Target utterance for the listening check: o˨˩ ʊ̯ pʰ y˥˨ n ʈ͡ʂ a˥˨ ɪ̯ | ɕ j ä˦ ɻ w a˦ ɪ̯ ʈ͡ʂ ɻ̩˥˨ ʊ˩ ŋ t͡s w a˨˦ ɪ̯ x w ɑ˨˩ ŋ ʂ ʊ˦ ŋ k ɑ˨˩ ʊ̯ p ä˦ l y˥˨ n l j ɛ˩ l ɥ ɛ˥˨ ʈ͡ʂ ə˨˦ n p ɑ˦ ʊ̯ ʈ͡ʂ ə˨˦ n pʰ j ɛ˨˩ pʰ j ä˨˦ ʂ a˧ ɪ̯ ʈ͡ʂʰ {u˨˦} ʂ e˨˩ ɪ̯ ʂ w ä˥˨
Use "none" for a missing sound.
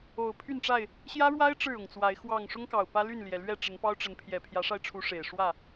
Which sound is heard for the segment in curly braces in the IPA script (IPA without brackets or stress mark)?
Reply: u˨˦